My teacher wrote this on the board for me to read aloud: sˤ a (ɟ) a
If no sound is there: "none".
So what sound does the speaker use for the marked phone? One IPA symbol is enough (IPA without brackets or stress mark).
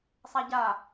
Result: ɟ